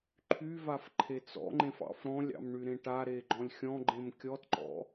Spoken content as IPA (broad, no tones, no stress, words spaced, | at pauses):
ǃʰyvaf ǃʰet͡sɔ̰ŋ͡ǃẽf ɑ̰fɾɔ̃lʲɑ̰m ɳyɾẽʈaɾe ɡ͡ǃɔ̃lʲxʲɔ̃ɡ͡ǃẽm kʲɔtǃɔ̰